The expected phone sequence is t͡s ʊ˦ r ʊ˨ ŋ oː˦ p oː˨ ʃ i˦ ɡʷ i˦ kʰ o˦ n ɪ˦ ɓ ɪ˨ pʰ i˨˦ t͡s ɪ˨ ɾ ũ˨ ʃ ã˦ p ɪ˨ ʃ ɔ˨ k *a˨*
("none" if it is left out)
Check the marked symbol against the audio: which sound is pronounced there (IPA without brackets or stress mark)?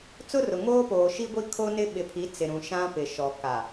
a˨